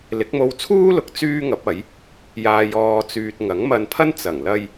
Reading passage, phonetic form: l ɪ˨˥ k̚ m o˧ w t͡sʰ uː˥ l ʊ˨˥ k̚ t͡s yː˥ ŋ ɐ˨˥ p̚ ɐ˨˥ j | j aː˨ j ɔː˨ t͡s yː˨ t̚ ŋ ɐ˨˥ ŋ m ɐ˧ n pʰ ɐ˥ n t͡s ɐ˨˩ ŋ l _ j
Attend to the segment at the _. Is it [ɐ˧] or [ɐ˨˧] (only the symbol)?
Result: ɐ˧